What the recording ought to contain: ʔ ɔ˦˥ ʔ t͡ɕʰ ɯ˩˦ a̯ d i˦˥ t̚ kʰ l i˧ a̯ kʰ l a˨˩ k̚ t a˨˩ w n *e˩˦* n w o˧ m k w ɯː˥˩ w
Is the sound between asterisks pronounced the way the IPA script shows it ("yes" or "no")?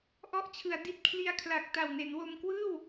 yes